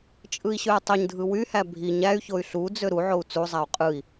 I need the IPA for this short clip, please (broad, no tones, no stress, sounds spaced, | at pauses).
t͡ʃʼ ɯ i̯ ɕ ø y̯ tˤ ø ɲ dʱ ɯ w y h æ bʱ i ɲ æ y̯ ç o y̯ ɬ u d͡z ø ɾ u ʕ o u̯ t͡s u zˤ æ u̯ qʼ ɯ i̯